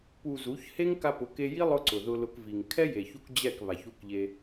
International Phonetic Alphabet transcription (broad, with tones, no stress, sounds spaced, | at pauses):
p u˨ z u˨˦ ç h e˦ ŋ k a˧ p ʊ˨˦ k e˧ j i˦ lˠ ʊ˦ ǀ ʊ˨ ð ʊ˧ l ʊ˧ k v i˨ ŋ kʰ ɛ˦ j e˨ ç u˧ k d͡ʑ ɛ˦˨ k β a˨ ç u˧ k ʎ e˧